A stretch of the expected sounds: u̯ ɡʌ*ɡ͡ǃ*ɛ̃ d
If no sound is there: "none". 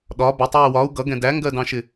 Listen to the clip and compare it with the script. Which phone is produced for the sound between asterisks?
ɡ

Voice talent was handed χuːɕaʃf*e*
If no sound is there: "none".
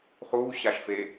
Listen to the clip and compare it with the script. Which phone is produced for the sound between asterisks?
e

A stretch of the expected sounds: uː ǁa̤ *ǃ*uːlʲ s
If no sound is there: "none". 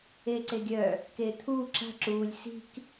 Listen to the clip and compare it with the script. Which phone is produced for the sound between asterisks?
ǁ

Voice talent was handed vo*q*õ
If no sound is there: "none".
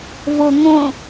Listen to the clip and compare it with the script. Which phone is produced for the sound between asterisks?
ŋ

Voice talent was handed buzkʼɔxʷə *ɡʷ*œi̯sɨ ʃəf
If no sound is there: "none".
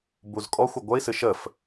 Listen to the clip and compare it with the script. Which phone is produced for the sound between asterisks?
ɡʷ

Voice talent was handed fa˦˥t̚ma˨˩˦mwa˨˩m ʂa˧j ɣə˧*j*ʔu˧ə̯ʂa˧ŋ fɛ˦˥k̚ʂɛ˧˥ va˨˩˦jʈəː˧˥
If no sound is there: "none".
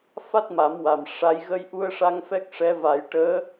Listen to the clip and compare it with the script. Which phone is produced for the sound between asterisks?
j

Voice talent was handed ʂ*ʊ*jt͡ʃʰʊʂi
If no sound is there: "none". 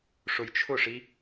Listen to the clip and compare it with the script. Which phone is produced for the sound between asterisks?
ʊ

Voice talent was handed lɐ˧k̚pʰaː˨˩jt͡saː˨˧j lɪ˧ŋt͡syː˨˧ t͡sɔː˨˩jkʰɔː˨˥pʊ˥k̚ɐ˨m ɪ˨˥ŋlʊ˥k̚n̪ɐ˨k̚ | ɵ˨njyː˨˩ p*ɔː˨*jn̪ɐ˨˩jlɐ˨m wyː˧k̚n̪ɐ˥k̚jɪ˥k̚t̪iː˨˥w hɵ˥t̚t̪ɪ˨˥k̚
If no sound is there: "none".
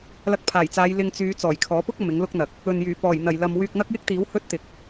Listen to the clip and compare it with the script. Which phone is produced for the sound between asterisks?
ɔː˨˩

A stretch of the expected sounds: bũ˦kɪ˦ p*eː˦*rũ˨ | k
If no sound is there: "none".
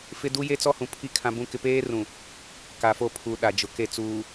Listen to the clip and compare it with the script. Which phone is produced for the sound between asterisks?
eː˦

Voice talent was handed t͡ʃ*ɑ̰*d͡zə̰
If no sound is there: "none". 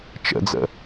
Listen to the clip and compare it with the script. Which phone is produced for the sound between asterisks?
ə̰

